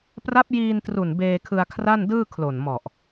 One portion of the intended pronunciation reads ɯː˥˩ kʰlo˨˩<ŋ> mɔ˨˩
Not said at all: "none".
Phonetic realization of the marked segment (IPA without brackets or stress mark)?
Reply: n